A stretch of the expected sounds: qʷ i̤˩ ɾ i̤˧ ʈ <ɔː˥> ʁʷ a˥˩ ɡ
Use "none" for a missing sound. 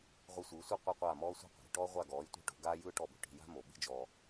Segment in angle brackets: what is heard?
ɔː˥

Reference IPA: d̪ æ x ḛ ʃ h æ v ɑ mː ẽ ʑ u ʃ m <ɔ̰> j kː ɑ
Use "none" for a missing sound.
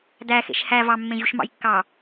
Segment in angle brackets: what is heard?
ɑ̰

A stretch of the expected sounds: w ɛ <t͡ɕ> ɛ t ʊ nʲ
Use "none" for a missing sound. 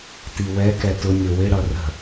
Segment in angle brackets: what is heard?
k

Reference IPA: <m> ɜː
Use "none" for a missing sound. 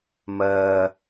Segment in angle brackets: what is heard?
m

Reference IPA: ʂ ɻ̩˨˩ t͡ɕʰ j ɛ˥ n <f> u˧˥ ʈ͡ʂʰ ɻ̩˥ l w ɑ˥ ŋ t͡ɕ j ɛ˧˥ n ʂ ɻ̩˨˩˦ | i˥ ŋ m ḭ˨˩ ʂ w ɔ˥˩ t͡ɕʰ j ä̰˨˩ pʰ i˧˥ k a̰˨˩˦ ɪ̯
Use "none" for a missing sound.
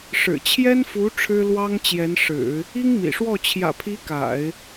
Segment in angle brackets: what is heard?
f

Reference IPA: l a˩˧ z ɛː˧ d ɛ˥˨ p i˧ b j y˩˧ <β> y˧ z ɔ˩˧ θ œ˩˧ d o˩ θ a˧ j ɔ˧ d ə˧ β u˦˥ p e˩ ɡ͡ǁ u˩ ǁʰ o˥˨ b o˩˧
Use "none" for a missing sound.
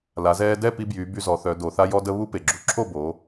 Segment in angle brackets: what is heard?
b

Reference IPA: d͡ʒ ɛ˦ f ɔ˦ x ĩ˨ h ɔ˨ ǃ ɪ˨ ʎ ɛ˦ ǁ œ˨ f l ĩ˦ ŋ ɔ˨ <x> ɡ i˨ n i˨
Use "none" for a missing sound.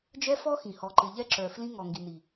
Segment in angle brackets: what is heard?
ŋ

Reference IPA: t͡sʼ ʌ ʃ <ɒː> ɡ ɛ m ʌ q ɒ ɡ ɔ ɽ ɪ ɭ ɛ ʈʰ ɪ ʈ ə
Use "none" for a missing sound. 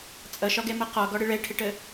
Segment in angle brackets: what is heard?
ɒ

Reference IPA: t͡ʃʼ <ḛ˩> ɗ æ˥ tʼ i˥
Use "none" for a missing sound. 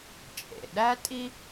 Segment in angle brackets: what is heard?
ḛ˩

